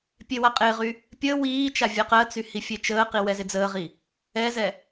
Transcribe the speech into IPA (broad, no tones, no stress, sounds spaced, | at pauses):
pʲ e w a qʼ ɪː ʁ y | pʲ əː w iː t͡ʃ a vʲ ɜ q ɜ t͡s y h i fʲ e t͡ʃ əː q i w ɛ z ɪ d͡z əː ʁ i | ɛ z ɛ